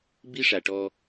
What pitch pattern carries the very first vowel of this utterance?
high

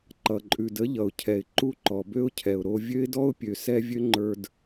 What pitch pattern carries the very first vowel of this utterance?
low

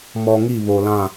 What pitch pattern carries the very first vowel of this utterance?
low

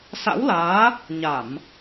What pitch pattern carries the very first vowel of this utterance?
rising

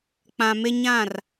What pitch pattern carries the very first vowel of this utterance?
low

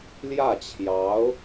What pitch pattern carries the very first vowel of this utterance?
falling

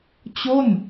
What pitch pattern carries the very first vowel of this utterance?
falling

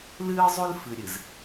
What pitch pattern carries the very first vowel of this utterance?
high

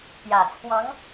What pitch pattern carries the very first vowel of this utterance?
low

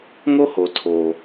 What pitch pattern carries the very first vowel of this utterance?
high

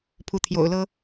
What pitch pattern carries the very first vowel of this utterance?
rising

